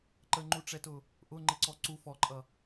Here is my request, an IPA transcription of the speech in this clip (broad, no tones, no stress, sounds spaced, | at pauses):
ǃ ə ŋ͡ǃ u ʈ͡ʂ ɛ t ʊ | ʔ ʊ ŋ͡ǃ ɪ ǀ ɔ ǀ u f ɔ ǃʼ ʌ